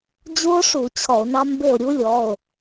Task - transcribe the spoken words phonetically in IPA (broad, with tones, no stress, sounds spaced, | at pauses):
d͡ʑ u˦˥ o̯ ʂ u˧˩˧ t͡ɕʰ ɔ˧˩˧ o̯ n ɑ˦˥ m b e˥˨ o̯ ɾʲ u˦˥ lʲ ɔ˩˧˩ o̯